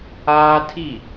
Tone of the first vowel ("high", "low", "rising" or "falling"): high